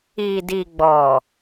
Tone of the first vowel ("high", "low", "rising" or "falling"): low